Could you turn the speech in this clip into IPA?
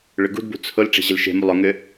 ɭʏɡṳdbṳ t͡sʰʊl ʈ͡ʂe̤ʑɪlʃe̤mu lˠʊŋʏ

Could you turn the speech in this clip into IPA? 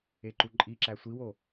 eǃuǃʼi ǁæsʷiwo

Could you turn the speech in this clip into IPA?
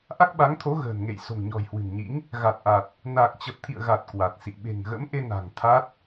ʔa˦˥k̚ɓa˨˦ŋt̪ʰo˨˦ ɣə̤ː˨˩nŋḛ˧˨j so̤˨˩ŋɲɔ̤˨˩jhwɨ̤˨˩nɲḭ˧˥ŋ | ɣa˨˩t̚ʔa˨˩t̚ | na˨˩k̚t͡ɕə˨˩p̚t̪ʰḭ˧˨ə̯ɣa˨˩t̚ kwa˨˩t̚sḭ˧˨ ɓe̤˨˩ŋɣə̰˧˥mʔe˧na̤˨˩ŋ t̪ʰa˦˥t̚

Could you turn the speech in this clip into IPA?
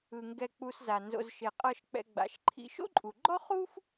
ɯ˩ŋɡɛ˨k͡pu˨s za˩nzo̰˨z ʃe˩qʼɤ˨ʃk͡pɛ̰˨ ɡ͡ba̰˩ʃǃʰḭ˨ʃo̰˥ǃʼu˩ ɡ͡ǃɔ˥χu˥f

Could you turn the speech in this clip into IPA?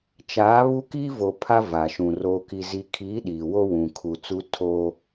t͡ʃaː˨˦ βu˦ kiː˦vo˨ pʰa˦ va˨ʃũ˨ roː˨ki˨zi˨kʰiː˨˦ ɗiː˨wo˦wũ˨kʰu˨ t͡su˦ tʰoː˦

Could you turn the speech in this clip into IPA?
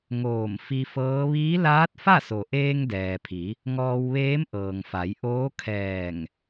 ŋoː˧˩m fi˧fɤː˧˥ ʋiː˧˥laː˧˥t̚fa˥˨so˩ ʔeː˧ŋdɛː˩pʰi˩˧ | ŋɔː˧wʋeː˧˥mʔɤː˩ŋ fa˩˧j ʔoː˧˥kʰɛː˧˩ŋ

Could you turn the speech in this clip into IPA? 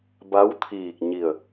ba˧˥wt̪ʰiː˧˩k̚ɲi˧˩ə̯

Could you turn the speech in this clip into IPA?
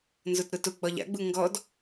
nzʊtɾʊtʊ ɡ͡bɒʎa̰ɡ͡bu ŋɡɔd

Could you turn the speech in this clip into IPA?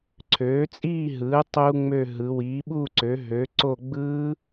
ǀʰøː˩˥t͡sʼiː˥˨ɦɯː˩˥ tˤu˦˥ŋ͡mø˥˨ɦɯ˩˥ wiː˩˥ɓu˥˨ǀø˩˥ɦø˩˥ ǀo˥˨ ɡ͡bɯː˦˥

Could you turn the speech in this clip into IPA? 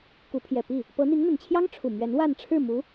ku˧˥pʰjɛ˨˩ pi˥˩ | pɤ˧˥n̪i˧˥ŋn̪ə˨˩nt͡ɕʰjɑ˥ŋ ʈ͡ʂʰu˨˩mɥɛ˧˥n wa˥˧n ʈ͡ʂʰɻ̩˥˩mu˧˥

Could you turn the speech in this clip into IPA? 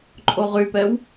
ǃʼoʁypɛw

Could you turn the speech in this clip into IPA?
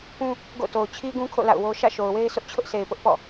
pũ˦ | ɡo̰˦˨to˨ʊ̯ t͡ɕʰi˦ɡũ˦kʰo̰˦˨ la̰˦˨ʊ̯wo˦ ʃä̰˦˨ʃo˨ʊ̯we˦ɪ̯ sʊ˦ʔt͡ɕʰʊ˦ʔse˨ɪ̯pʊ˦ʔ pɔ̰˦˨

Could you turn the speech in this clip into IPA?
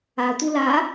atʷi la

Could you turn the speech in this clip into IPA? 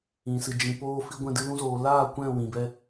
ĩ˨sɨ˨d͡ʒĩ˨ poː˧fi˧ɡʷɛ̃˧dɨ˧ lũ˧zoː˨ laː˦˨ kʷɛ̃˦˨wĩ˨bɛ˧

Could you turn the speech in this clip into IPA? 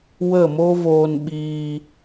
wə˦˨mo˦voː˧n ɓiː˧

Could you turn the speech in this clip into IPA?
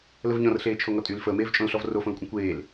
ləvɲɔ̃rɬeː t͡ʃʰoŋɔtʼyl fəːmeːvt͡ʃʼõlɬɔv rofõlkʷʼə̃ kʷeːl

